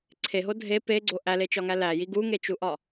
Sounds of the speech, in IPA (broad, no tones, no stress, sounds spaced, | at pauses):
ǀʰ e ɦ o dʱ e p e ɡ͡ǀ o ʔ æ l e t͡ʃ ɒ ŋ æ l æ j i ɡ u ŋ e t͡ʃ u ʔ ɒ